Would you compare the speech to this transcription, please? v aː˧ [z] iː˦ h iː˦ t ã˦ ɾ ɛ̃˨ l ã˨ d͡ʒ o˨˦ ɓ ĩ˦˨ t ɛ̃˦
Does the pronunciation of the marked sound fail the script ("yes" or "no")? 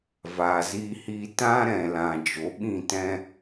no